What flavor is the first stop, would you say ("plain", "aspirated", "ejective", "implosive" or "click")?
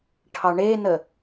aspirated